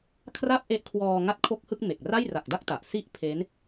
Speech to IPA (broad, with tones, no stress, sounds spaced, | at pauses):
kʰ r a˥˩ p̚ ʔ e˦˥ ʔ kʰ w ɔː˧ ŋ a˥˩ t̚ kʰ o˥˩ k̚ h ɯ˥˩ k̚ m e˨˩ k̚ r a˥˩ j r a˨˩ k̚ d a˥˩ k̚ t a˨˩ ʔ s i˦˥ ʔ pʰ e˦˥ n